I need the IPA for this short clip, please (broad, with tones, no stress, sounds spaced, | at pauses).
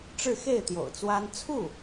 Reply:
ʈ͡ʂ ɻ̩˥˧ x e˥˩ ɪ̯ t̪ j o̰˨˩ ʊ̯ t͡s w a˥ n t͡sʰ u˥˩